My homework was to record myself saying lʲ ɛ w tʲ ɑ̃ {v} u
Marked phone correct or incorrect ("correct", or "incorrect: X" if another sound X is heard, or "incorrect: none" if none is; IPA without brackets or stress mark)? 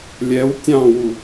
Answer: incorrect: w